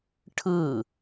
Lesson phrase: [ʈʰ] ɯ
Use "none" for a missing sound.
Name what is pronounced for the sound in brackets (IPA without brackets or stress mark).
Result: ʈʰ